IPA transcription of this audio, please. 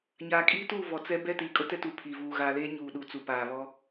ɲ aː˨ kʼ iː˦ t uː˦˨ v ɔ˨ t͡s ɛ˦ b ɛ˦ t iː˨ kʼ ʊ˦ t ɛ˦ t uː˨ pʰ iː˨ v uː˨ ɣ aː˨ l eː˦ ɲ uː˨ ɗ u˨ t͡s u˨ p aː˨ β ɔ˦

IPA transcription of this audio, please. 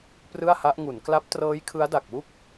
p r ɯ˥˩ a̯ h a˦˥ ʔ ŋ u˩˦ n k l a˦˥ p̚ t r ɤː˦˥ j kʰ ɯ˦˥ a̯ d a˨˩ k̚ w u˥˩ k̚

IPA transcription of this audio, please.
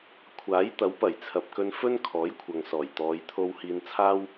kʷʰ aː˨˥ j t̪ ɐ˨˥ w p ɐ˨˩ j t͡sʰ ɐ˨ p̚ k ɵ˧ n f ɵ˥ n kʰ ɔː˨˥ j kʷʰ ɐ˨ ŋ s ɔː˨˩ j t̪ ɔː˨˧ j t̪ʰ o˧ w h iː˧ n t͡sʰ aː˥ w

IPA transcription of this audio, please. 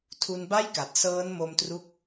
tʰ u˧ n b a˥˩ j k a˨˩ t̚ s ɤː˦˥ n m o˧ m t r u˦˥ k̚

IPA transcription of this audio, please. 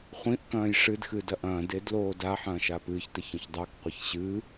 χʷ ĩ ʔ k ɐ̃ː j ʂ ɨ d x ɨ d ɐ ʔ ɐ̃ː d e d l oː d a ħ ɐ̃ː ʃ a p ɨː ç t ɘ ç ɐ̃ ç dˤ a k qʷ ɐ ç ɕ ɨː

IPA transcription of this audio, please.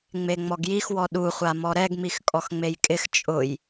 ŋ͡m e ŋ͡m ɔ ɡ j i x w ɔ ɗ u χʷ a m ɔ ɾ ɛ ɡ m i x kʼ ɔ x ŋ͡m e j kʼ ɪ x t͡ʃʼ ʊ j

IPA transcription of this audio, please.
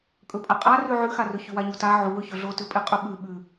kʼ ɵ pʼ a qʼ a r ʉ ʕ ʉ x a r ɵ ç ʉ w a ɲ u t a ʕ u w ɵ ç ɵ ɮ o t ʉ pʼ e qʼ ɵ ɓ ʉ ɓ ʉ

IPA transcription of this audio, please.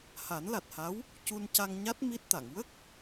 h a˨˩˦ n l a˨˩ t̚ h a˧˥ w | c u˧ n c a˧ ŋ ɲ a˦˥ t̚ m i˦˥ t̚ t̪ a˨˩˨ ŋ w ə˦˥ k̚

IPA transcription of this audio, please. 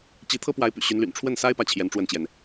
t͡ɕ i˧˥ t̪ʰ ɤ˥ p w a˧˥ ɪ̯ p y̰˨˩ ɕ y˧˥ n l y̰˨˩ n ʈ͡ʂʰ w ə˥˩ n s a˥ ɪ̯ p ä˥˩ t͡ɕʰ j ɛ˧˥ n ʈ͡ʂ w ə˥˩ n t͡ɕ j ɛ˩ n

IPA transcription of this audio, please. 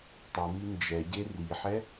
tˤ u m i n d͡ʒ ɛ ɟ e r i ħ ɛ

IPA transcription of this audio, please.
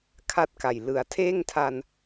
kʰ a˥˩ t̚ k a˨˩ j l ɯ˨˩ a̯ tʰ eː˥˩ ŋ tʰ a˧ n

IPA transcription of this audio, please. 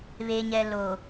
β e˨ ɲ ɛ˨ l o˨

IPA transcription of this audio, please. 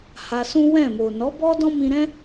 h a˧ s ũ˦ w ɛ̃˦˨ m o˨ n ɔ˨˦ b ɔ˦ d ɔ̃˦ m ĩ˧ ɾ ɛ̃˦

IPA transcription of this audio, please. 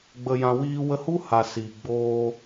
ɡ͡b ə˨ j ã˨ w iː˧ w ə˧ h u˦ h a˨ s iː˨ ɡ͡b oː˧

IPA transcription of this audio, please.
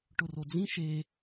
ʈ ʊ r o d͡z ĩ ʃ e

